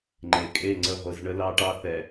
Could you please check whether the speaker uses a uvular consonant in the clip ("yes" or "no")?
yes